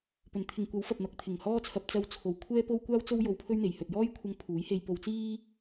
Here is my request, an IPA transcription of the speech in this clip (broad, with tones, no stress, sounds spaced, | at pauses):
p ɵ˨˧ n t̪ʰ ɪ˨ ŋ kʷ ɐ˨˥ w f ɐ˨ p̚ n̪ ɐ˨ k̚ t̪ʰ ɪ˨˩ ŋ h ɔː˥ t͡sʰ ɐ˧ p̚ t͡s ɐ˧ w t͡sʰ o˨ w kʷʰ ɛː˥ p o˥ w kʷ aː˥ w t͡s o˥ w j o˧ w pʰ ɵ˥ ɥ n̪ e˨ j h ɵ˨ t̚ j ɔː˥ j kʷʰ ɐ˧ ŋ pʰ uː˨˥ j h e˧ j p o˧ w t͡s iː˥